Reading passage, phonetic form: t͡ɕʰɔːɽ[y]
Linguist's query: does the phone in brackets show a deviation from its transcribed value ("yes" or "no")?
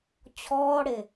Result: yes